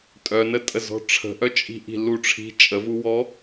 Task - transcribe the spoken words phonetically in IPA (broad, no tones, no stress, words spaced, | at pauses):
tʼœnətʼə zɔ̤ʈ͡ʂʰə̤ʔœt͡ʃʼi̤ ʔi̤luʈ͡ʂʰi̤ t͡ʃʼəvuwɔ